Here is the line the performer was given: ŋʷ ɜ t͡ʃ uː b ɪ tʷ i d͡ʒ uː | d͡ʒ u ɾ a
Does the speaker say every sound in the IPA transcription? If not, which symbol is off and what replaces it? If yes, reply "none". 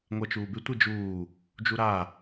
none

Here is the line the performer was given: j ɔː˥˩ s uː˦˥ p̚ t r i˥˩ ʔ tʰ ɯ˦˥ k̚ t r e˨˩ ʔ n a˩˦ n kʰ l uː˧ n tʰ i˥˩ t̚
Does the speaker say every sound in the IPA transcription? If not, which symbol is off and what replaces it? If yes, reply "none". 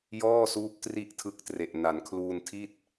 none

